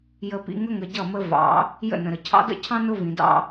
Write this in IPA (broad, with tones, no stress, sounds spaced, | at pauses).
j ə˨ p ḭ˨ ŋ ə˦ ŋ ə˨ ɟ ʌ˦˨ m ə˦ v ɑ̰˨˦ | j ə̰˦˨ n ə̃˨ ɾ ə˨ cʰ ɑ̰˦ d ə̰˦ cʰ ɑ̃˦ n ʊ˦ v ĩ˨ d ɑ̰˦